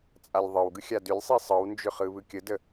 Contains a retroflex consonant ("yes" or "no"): no